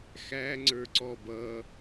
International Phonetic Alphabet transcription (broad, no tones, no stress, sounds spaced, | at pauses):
x æ ŋ͡ǀ ə˞ ǀ ɔ b ʌ